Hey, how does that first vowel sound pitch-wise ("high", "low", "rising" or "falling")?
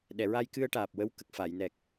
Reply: low